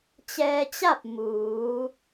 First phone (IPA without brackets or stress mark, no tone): t͡ɕ